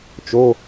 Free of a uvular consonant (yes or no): yes